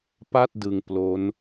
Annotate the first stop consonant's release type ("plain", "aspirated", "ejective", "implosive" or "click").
plain